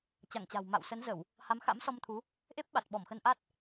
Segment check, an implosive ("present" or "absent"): present